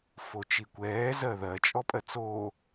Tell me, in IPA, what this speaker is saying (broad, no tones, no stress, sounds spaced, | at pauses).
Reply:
f o t͡ʃ i kʷ ɛː z ɜ ð ɜ t͡ʃʼ ɔ pʼ ɜ t͡s oː